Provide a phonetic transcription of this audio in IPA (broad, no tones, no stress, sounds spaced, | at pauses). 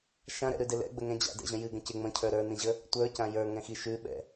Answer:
ʃ ã ɾ ɛ̰ ɾ ʉ d ɪ l ɛ̰ ɡ͡b ə ŋ ɛ̃ d͡ʑ a̰ d ɛ̰ ʑ ə̃ j ɨ ɡ ə̃ c ɪ ŋ͡m ə̃ cʰ ə˞ ɾ ə˞ n ĩ ʑ ə | tʷ ə˞ c ã j ə˞ ŋ ɛ̃ x i ʃ ʉ ɓ ɛ̰